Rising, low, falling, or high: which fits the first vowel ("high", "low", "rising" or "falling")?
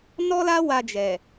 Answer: high